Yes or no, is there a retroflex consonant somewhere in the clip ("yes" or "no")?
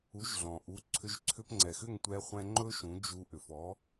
no